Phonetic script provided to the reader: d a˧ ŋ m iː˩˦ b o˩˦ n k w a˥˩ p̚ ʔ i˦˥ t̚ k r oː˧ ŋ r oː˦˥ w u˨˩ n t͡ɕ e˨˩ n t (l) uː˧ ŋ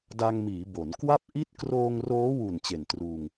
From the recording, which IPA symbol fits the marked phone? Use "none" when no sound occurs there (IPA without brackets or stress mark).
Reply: r